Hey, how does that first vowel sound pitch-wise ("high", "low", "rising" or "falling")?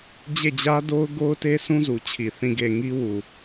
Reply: falling